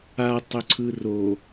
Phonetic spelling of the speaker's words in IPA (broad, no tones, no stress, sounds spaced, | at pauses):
a tˤ ɵ ǀʰ ɯ r o